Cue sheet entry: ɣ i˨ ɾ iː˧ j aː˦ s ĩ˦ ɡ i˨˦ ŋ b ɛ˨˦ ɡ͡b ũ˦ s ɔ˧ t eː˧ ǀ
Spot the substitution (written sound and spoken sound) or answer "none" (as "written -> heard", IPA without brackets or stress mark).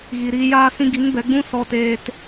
ǀ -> t